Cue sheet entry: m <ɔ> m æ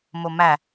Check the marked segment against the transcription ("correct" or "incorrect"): incorrect